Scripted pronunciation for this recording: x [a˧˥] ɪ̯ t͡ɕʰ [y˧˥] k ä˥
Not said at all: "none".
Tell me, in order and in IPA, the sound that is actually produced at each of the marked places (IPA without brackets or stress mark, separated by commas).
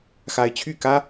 a˧˥, y˥˩